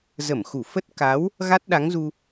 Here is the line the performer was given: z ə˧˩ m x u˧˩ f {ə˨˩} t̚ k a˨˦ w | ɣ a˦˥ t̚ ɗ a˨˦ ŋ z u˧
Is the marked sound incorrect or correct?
incorrect